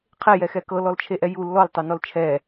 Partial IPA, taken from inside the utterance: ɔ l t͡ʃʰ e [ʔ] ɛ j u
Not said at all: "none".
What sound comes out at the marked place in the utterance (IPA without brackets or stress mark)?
ʔ